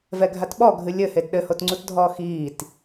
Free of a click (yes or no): no